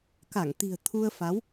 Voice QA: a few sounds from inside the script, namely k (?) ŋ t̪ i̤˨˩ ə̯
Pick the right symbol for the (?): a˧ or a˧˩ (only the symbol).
a˧˩